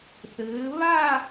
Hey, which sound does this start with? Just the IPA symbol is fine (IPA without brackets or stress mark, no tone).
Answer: θ